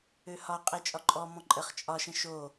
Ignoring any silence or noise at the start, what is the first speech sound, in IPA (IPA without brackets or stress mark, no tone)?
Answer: ø